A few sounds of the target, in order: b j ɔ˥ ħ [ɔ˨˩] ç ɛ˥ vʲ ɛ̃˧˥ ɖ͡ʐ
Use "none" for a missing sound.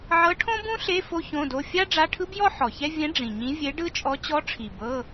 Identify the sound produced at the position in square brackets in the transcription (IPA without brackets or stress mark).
ɔ˨˩